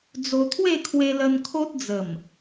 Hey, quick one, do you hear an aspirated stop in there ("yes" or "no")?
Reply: yes